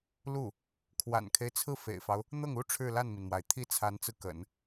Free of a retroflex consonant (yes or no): no